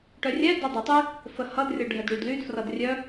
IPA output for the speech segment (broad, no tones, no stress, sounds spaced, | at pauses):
ʈ œ rʲ ɛ d œ dˤ œ tˤ y | f ə h ʌ d rʲ ʌ ɖʱ ɛ d ɽ y d l y d f r ʌ d rʲ œ